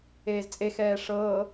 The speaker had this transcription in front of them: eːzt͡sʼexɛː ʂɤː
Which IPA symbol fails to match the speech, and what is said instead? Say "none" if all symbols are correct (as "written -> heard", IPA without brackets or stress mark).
none